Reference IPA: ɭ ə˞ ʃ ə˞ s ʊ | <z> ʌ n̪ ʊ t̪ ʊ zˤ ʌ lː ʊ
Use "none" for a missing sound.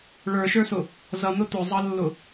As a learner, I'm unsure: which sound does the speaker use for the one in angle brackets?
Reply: z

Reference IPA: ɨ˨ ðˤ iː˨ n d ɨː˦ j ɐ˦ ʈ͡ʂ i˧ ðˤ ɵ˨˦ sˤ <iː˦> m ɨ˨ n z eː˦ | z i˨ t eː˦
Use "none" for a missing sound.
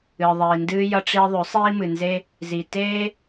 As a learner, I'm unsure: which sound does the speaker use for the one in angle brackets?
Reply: iː˦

